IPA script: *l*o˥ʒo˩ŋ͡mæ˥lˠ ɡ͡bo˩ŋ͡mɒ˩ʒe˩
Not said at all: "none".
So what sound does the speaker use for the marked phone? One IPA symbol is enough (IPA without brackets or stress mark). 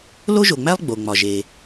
l